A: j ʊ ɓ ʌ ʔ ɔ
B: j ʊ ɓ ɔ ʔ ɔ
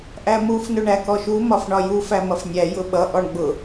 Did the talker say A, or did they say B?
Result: A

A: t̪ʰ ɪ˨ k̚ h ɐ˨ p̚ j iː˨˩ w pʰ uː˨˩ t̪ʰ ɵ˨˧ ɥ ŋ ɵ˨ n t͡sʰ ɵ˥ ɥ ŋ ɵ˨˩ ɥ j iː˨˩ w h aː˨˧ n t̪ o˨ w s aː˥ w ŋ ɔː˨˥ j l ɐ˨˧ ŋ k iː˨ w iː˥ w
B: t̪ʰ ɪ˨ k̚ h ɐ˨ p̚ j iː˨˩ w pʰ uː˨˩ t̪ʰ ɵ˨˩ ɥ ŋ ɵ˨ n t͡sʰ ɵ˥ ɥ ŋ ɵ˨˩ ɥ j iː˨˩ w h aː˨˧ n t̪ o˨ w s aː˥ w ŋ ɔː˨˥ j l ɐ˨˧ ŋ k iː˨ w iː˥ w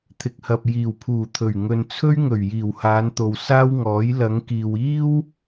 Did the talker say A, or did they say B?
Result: B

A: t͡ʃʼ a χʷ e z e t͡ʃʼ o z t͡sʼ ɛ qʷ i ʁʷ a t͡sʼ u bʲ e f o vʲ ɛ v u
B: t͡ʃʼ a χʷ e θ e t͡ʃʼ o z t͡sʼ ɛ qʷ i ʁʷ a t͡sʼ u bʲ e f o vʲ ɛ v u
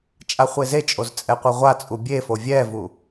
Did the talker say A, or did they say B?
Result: A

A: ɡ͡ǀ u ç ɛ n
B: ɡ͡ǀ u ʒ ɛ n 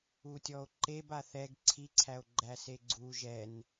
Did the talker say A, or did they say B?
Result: B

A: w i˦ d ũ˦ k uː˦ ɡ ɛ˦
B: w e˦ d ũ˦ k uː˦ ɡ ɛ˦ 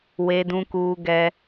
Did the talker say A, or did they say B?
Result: B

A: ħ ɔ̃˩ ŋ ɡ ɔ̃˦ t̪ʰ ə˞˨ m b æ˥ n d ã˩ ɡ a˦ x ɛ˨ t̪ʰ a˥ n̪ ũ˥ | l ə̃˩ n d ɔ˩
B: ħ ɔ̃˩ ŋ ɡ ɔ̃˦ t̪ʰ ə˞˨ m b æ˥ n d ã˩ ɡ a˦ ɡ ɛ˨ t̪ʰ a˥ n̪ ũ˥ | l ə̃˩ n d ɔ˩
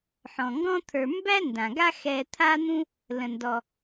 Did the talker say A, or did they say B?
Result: A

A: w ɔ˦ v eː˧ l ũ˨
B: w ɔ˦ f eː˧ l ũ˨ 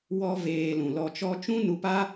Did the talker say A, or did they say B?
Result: A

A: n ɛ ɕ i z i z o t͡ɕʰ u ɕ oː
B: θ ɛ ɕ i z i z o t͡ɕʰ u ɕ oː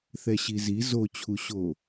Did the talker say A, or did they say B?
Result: B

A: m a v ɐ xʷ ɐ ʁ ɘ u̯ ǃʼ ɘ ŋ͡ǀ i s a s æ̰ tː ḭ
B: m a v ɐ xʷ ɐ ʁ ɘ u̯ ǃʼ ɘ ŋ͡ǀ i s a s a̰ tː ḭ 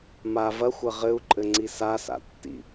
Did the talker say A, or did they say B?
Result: B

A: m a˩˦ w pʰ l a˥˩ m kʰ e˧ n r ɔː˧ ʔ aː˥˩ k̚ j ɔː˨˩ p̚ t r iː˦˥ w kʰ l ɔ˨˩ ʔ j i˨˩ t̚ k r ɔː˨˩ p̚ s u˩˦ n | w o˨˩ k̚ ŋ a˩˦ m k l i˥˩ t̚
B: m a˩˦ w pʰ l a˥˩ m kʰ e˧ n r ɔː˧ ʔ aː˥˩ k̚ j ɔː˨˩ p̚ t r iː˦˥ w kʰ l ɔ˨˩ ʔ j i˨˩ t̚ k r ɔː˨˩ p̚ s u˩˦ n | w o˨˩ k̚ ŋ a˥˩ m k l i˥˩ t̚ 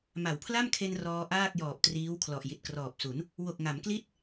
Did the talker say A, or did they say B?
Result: A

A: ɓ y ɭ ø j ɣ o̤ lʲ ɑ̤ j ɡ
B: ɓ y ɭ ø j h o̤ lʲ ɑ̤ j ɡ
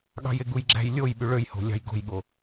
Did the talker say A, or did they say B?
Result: B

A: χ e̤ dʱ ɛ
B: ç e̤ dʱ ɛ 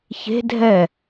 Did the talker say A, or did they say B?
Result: B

